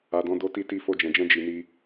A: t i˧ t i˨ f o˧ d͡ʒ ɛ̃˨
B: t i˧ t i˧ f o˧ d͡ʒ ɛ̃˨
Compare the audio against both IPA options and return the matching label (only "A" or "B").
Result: B